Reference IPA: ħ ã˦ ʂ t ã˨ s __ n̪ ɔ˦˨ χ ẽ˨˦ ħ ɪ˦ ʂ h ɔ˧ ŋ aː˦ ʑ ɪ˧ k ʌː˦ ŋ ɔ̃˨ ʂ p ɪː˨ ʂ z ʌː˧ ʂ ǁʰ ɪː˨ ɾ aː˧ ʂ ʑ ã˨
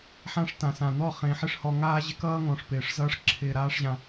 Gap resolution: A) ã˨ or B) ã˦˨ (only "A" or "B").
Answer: A